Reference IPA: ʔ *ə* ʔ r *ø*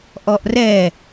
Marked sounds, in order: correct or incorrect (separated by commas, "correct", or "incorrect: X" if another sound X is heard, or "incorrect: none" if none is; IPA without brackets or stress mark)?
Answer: incorrect: ɔ, incorrect: ɛ